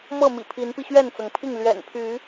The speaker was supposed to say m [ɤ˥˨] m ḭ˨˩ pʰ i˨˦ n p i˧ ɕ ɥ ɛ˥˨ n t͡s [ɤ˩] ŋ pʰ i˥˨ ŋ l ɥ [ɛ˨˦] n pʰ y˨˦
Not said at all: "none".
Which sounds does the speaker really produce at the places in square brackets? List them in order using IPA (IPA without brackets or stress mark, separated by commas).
ɤ˥˨, ɤ˩, ɛ̰˨˩